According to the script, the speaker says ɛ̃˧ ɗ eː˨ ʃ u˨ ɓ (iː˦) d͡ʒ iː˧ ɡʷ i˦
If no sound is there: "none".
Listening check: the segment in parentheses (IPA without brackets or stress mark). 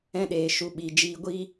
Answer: iː˨